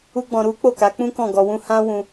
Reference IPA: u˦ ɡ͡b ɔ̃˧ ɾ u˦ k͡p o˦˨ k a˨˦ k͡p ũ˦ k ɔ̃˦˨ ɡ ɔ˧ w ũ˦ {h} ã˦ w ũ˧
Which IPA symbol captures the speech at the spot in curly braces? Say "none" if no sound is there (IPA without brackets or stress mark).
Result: h